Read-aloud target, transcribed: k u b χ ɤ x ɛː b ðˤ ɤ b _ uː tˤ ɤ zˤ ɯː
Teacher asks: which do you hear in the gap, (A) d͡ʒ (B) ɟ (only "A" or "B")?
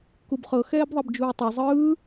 A